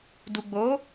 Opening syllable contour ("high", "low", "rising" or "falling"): low